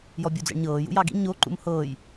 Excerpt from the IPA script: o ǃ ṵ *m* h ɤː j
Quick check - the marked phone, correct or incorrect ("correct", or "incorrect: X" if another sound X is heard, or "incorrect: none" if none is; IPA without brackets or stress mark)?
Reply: correct